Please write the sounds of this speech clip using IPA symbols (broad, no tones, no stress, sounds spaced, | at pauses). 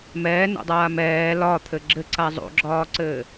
m ɛː n o̰ dˤ aː m ɛː l ɒ t̪ʰ ɘ ɡ͡ǁ ɘ ǀ a zˤ o̰ ɡ͡ǁ ɒː ǀ ɘː